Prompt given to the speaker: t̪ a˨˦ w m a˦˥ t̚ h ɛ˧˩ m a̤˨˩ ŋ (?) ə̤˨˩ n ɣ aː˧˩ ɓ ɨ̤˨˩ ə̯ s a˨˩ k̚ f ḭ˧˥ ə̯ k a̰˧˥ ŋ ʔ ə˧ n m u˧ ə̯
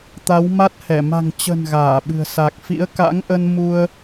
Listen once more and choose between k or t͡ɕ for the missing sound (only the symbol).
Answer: t͡ɕ